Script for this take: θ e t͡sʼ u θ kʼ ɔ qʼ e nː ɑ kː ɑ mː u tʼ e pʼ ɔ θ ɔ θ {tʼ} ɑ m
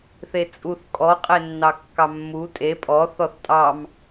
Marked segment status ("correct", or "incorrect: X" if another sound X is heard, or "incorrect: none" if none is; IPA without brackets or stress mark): correct